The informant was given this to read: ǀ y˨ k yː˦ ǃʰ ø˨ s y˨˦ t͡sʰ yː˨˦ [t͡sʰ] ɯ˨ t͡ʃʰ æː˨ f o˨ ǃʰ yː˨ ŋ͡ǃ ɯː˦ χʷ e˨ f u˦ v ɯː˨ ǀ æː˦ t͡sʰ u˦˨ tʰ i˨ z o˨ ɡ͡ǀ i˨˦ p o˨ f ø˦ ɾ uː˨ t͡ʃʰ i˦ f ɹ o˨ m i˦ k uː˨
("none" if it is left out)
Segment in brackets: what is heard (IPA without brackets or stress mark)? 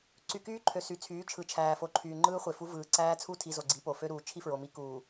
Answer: t͡ʃʰ